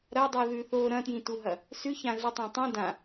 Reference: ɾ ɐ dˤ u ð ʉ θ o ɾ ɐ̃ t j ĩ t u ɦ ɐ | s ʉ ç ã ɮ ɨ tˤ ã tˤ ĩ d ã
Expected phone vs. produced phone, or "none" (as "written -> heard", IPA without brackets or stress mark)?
none